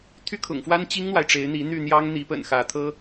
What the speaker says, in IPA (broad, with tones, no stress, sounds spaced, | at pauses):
t̪ʰ y˥ kʰ ʊ̰˨˩ ŋ f w a˥ n t͡ɕ i˥ ŋ n̪ w a˨ ɪ̯ ʈ͡ʂ e˧˥ ɪ̯ n̪ i˧˥ n̪ y˥˩ n̪ j ɑ˥ ŋ n̪ i˧˥ p ə̰˨˩ n x ä˧˥ t̪ʰ ɤ˥